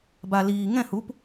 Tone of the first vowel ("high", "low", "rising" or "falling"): low